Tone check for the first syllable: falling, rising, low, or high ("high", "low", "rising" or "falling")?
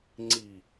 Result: low